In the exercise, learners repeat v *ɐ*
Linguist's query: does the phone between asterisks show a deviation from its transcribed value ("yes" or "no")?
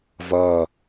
no